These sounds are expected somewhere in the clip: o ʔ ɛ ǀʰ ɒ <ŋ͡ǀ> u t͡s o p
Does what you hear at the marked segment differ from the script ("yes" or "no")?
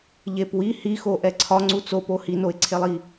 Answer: no